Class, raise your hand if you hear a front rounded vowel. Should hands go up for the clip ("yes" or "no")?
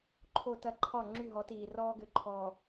yes